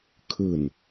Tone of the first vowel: low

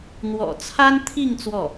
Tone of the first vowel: low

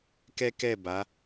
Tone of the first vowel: high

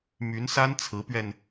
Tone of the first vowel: rising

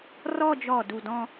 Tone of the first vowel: falling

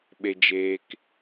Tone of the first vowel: low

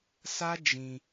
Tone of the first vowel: high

